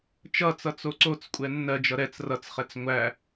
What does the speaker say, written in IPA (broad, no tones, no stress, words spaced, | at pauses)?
t͡ʃʌt͡sʌ t͡soǀot͡skʷʼɛ nːɜd͡ʒʌ ɾɛt͡s rʌt͡sχɛt͡s ŋʷæ